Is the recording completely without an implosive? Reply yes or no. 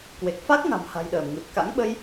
no